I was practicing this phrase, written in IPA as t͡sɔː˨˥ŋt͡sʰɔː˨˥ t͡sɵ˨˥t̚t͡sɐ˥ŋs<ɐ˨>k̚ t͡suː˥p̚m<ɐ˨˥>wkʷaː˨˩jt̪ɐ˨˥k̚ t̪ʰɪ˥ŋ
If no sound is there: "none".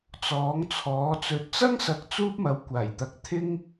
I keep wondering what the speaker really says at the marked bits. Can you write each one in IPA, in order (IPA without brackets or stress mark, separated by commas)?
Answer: ɐ˨, ɐ˨˥